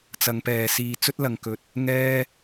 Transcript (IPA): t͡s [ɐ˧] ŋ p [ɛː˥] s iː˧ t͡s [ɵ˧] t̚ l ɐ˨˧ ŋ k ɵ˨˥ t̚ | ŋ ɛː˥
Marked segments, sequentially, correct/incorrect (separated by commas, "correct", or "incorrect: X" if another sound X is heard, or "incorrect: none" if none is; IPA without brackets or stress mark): incorrect: ɐ˨˧, incorrect: ɛː˨, incorrect: ɵ˥